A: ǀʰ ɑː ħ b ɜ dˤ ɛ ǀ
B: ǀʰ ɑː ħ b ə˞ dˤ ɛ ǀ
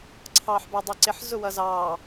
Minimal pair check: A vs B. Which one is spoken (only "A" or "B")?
B